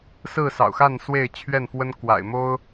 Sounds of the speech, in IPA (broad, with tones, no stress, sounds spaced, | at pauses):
s ɹ̩˥˨ s ɑ̰˨˩ ʊ̯ x a˥˨ n s w e˥˨ ɪ̯ t͡ɕʰ ɥ ɛ˥˨ n f w ə˦ n k w a̰˨˩ ɪ̯ m o˦ ʊ̯